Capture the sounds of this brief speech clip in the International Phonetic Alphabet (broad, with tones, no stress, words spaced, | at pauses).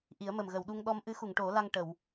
ʔi˨˩˦ə̯mə˨˩mɣə˨˩˨wɗu˧ŋ ɗɔ˧m ʔɨ˧˥xu˨˩˨ŋʈo˨˩˦ la˧ŋʈə˨˩˨w